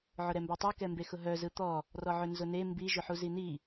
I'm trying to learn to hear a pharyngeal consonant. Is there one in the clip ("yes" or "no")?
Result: yes